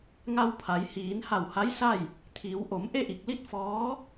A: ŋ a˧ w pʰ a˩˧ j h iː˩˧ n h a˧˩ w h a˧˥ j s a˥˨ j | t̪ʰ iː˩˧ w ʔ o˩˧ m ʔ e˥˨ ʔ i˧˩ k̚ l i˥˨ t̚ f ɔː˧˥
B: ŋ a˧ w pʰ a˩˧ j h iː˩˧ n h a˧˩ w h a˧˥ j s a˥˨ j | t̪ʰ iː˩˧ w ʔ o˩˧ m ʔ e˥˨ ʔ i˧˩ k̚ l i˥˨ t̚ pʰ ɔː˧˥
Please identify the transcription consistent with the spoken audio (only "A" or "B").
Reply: A